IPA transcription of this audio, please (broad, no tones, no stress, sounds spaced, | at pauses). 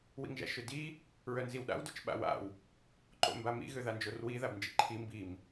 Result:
w ḭ ŋ ʒ a̰ ʃ ø d i | ɹ œ n z i w ɗ a̰ w d œ t͡ʃ ɓ a̰ w a̰ w | ǃ o̰ m b a m ḭ ɣ ø ð a n d͡ʒ o r w i ð a b n d͡ʒ ḭ ǃʰ i m b i m